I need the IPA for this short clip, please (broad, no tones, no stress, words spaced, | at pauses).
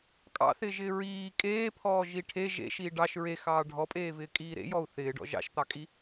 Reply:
kʼɑ̰θɪːʒɪː ɹiː kʼeːpʰɔːʒi ʈʰe ʒḛʃiː ɖɑʃ ɹexɑː ɖʱɔpʼeːvɪːkʼiː ɾḛjɔu̯ θɪːɖɔ̰ ʒɑ̰ʃt̪ɑkʼi